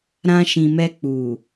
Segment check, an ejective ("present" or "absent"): absent